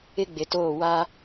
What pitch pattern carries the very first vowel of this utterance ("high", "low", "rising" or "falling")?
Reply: high